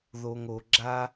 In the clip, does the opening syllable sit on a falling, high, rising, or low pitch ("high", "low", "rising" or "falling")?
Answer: low